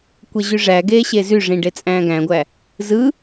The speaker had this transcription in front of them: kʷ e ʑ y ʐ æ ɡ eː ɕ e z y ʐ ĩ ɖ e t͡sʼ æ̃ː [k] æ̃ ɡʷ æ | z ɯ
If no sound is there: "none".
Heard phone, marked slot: ɡ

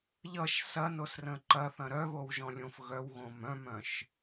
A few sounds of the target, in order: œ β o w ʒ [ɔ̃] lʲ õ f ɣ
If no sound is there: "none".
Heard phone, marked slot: ɔ̃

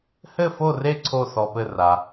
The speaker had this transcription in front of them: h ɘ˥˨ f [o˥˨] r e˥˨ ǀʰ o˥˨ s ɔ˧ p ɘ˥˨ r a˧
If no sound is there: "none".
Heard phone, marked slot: o˥˨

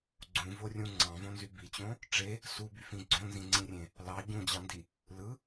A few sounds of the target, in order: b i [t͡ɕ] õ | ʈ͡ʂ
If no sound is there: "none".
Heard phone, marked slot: t͡ɕ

